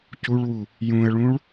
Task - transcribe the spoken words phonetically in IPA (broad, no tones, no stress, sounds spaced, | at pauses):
c u ɭ w u | j ũ ə̯ ɭ ũ ɭ